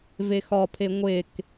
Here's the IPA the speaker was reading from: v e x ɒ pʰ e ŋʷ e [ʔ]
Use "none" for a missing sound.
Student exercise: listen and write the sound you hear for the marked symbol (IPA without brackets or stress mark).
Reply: k